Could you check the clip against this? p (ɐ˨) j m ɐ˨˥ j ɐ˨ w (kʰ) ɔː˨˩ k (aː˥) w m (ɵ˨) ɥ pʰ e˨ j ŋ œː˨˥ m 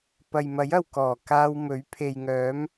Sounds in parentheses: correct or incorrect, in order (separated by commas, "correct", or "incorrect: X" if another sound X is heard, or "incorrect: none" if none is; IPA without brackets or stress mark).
correct, incorrect: k, incorrect: aː˧, incorrect: ɵ˨˥